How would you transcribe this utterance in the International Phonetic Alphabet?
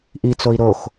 ʔit͡soi̯ ɾox

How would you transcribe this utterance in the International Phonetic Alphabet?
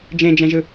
d͡ʒẽd͡ʒɛ̃ʒɯ

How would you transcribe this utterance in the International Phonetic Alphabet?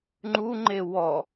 ŋ͡ǃuŋ͡ǃe wɔ

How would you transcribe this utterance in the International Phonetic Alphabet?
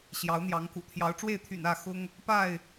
ɕjɑ˨˦ʊ̯n̪jɑ˨˦ŋkṵ˨˩ t̪ʰjɑ˨˦ʊ̯ʈ͡ʂwe˥˨ɪ̯t̪ʰy̰˨˩n ä˥˨ xʊ˦ŋ | pa˥˨ɪ̯

